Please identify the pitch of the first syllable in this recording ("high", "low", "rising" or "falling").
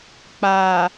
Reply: low